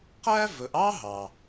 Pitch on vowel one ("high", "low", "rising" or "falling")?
high